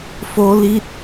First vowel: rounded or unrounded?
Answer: rounded